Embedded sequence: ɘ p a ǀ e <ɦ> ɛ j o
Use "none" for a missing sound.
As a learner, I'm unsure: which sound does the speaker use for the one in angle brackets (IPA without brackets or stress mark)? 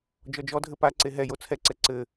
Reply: ɦ